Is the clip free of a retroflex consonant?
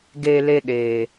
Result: yes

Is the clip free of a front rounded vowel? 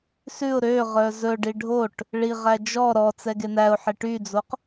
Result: no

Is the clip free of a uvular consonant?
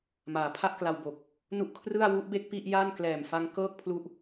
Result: yes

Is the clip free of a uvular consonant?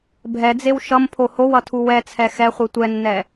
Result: no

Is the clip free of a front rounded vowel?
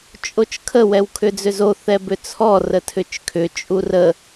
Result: no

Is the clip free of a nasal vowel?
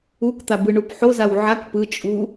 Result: yes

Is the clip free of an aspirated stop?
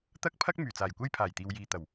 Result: no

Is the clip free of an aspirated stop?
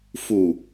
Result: yes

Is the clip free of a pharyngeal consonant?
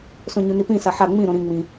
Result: no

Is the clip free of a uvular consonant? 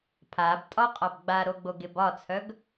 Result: no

